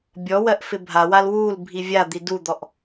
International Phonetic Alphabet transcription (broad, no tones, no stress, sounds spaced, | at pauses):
bʲ ɔ w ɜ ʔ f ɪ bʱ a w a l w u l bʱ i vʲ a d̪ i d u d̪ ɔ ʔ